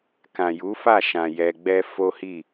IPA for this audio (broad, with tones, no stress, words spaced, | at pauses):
kã˨ju˨˦fa˦˨ʃã˨ jɛ˧ɡ͡bɛ˦ fo˦hi˦˨